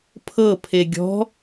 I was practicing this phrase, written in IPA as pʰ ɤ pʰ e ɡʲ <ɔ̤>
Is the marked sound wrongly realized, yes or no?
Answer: no